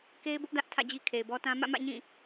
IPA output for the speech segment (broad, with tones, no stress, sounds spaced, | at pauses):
k e˦ ɪ̯ b ʊ˦ ʔ d ä˦ ʔ tʰ ä̰˦˨ d͡ʑ i˦ kʰ e˨ ɪ̯ b ɔ˦ t ã˦ m ä̰˦˨ m ä̰˦˨ ɲ ĩ˦˨